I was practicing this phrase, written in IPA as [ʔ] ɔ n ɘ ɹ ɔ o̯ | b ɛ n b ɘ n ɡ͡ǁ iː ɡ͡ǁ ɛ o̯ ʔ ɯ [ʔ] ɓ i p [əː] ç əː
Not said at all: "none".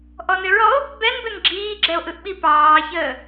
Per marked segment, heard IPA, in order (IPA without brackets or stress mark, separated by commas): ʔ, ʔ, ɑː